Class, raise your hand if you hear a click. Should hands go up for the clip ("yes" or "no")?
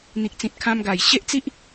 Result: no